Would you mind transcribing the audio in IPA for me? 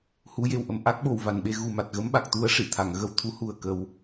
h u˨˩˦ j e˨˩ w ʔ ə˨˩˨ m ʔ a˦˥ k̚ ɓ o˨˩ w v a˨˩ n ɓ e˧ ɣ u˨˩ m a˨˩ t̚ ɣ ə˧˥ m ɓ a˨˩ k̚ t̪ u˧˥ ə̯ ʂ i˨˩˨ t̪ʰ a˨˩˨ ŋ ɣ ə˧ w t̪ʰ u˧˥ h u˨˩ ə̯ k ə˨˩˦ w

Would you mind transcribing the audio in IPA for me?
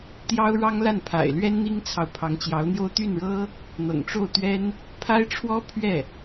t̪ j ɑ˥ ʊ̯ ɻ ɑ˥ ŋ l a˥˩ n pʰ a̰˨˩ ɪ̯ l ɥ ɛ˥ n n̪ i˥ ŋ t͡sʰ ɑ˨ ʊ̯ pʰ ɑ˧˥ ŋ t͡ɕ j ɑ˧˥ ʊ̯ n̪ j o˥ ʊ̯ t̪ y˥˩ n ɻ ɤ˥ | n̪ ɤ̰˨˩ ŋ ʈ͡ʂ o˥˩ ʊ̯ t̪ ɥ ɛ˥ n | pʰ a˥ ɪ̯ ʈ͡ʂʰ w ɔ˥ pʰ ɥ ɛ˥˩

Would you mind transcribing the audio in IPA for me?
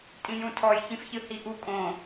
tʼ ĩ j ũ tʰ ɔ j ç ĩ f ç ɨ h i ʔ u kʼ õ

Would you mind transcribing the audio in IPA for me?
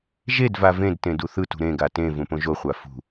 ʒ e d v a v ẽ d t ẽ d u θ ɯ t ṳ ɾ ẽ ɡ a t ẽ v ũ p õ ʒ o χʷ a f ṳ

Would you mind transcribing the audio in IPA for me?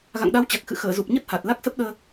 ɣ a̰˧˨ ŋ ɗ a˨˦ w t͡ɕ a˨˩ k̚ x ɨ̰˧˨ x əː˧˩ z u˨˩ p̚ ɲ ə˦˥ t̚ h a˨˩ t̚ l a˦˥ k̚ s ə˦˥ p̚ ɗ əː˧

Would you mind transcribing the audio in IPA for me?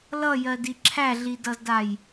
l ʌ j ɜ d i ǁʰ æ ɮ i d ʌ z d a j

